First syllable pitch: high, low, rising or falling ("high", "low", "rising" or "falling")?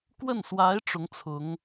falling